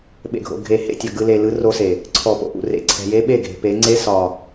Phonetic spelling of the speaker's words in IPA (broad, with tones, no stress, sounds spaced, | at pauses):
ɓ ḛ˨ ɡʱ o̰˨ ɡʱ e˨ h ḛ˦˨ tʲ ɒ˨ ɡ ɯ˨ l e˨ l ɯ˨˦ r o˦ s e˨ | ǀʰ ɔ˨ p o̰˨ ʔ ṵ˨ r ḛ˨ ǀʰ ɛ̤˨ j e˦ ɓ e˦˨ ɡʱ e̤˨ p e˨˦ ŋ͡ǀ e˦ s ɒ˨